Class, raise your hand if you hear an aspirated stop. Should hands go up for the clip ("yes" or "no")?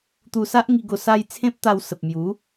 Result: yes